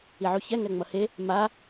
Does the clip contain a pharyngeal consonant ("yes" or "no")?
yes